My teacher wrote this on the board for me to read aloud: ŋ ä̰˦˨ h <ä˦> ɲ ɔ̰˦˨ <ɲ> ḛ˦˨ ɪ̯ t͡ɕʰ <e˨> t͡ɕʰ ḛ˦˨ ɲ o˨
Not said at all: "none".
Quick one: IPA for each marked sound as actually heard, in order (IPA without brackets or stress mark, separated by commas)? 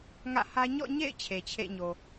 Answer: ä˦, ɲ, e˨